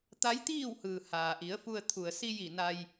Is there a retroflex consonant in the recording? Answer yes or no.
no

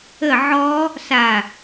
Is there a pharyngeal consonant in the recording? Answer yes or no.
yes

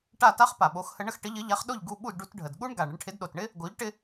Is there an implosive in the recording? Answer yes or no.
yes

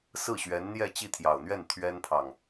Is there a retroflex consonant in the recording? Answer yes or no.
no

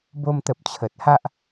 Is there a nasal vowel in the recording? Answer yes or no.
no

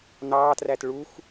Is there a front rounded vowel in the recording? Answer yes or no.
no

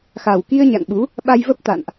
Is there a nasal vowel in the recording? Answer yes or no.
no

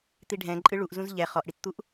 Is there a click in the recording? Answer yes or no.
yes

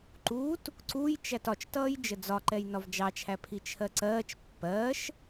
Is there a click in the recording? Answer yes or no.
yes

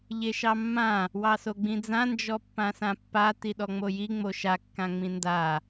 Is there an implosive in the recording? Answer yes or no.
yes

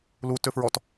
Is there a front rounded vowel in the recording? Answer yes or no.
yes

